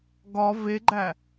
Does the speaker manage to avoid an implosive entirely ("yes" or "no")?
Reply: yes